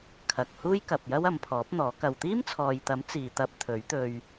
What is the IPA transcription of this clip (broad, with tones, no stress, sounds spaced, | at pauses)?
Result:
kʰ ɐ˨ k̚ h uː˥ j k ɐ˨ p̚ j ɐ˥ w ɐ˨˧ m pʰ ɔː˨˥ p̚ n̪ ɔː˨˥ k ɐ˧ w t̪ iː˥ m t͡sʰ ɔː˨ j t̪ ɐ˨˥ m t͡s iː˨ t̪ ɐ˧ p̚ t̪ʰ ɵ˨˥ ɥ t̪ ɵ˧ ɥ